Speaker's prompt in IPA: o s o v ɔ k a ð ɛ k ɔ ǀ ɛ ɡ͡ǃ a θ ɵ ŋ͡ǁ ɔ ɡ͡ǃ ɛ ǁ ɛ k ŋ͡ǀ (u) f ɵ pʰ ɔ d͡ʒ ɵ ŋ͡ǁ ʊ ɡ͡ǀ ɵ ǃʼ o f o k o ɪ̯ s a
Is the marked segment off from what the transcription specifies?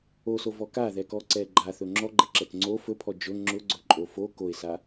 yes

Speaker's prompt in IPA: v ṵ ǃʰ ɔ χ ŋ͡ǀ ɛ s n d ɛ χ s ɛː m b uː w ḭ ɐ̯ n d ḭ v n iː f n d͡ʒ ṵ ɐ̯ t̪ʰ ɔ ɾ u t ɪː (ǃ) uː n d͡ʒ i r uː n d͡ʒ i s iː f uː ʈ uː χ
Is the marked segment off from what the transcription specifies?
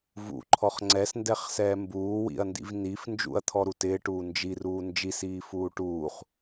yes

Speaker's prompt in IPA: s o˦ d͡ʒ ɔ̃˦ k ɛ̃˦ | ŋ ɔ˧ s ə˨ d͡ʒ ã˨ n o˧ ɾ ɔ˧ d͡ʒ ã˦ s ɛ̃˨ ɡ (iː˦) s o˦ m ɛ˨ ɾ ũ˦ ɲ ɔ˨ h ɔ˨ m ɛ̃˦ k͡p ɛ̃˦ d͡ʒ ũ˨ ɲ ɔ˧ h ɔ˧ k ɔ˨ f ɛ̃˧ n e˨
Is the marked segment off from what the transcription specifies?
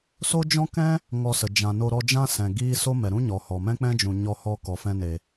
no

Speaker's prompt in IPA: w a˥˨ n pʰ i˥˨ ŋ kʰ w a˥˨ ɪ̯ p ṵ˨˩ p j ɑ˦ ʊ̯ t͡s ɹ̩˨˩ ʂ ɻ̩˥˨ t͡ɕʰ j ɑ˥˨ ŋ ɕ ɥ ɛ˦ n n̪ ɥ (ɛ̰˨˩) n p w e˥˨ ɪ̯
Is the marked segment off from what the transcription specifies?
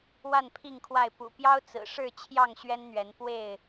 yes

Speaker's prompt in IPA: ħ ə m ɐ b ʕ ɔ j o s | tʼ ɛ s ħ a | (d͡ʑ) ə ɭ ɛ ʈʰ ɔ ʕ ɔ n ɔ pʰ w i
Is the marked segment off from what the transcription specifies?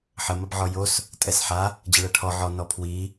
no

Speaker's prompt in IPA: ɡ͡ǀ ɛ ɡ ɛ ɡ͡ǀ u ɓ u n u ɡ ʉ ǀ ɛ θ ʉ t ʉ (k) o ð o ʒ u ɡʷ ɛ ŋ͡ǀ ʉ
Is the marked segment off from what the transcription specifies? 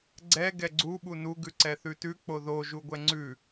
yes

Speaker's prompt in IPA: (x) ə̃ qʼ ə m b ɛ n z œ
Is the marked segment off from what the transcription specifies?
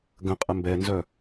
yes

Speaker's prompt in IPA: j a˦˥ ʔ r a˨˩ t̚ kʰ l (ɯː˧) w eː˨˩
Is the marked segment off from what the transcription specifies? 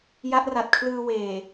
no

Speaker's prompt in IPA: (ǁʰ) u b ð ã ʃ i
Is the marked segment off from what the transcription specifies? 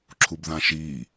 no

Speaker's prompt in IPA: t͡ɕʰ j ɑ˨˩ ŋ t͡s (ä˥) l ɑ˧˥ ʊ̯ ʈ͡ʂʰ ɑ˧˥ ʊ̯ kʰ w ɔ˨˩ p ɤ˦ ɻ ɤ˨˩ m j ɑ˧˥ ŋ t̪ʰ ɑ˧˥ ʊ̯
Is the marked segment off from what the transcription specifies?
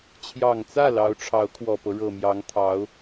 yes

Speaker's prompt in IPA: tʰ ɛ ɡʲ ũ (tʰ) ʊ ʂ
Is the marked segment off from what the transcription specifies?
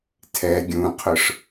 yes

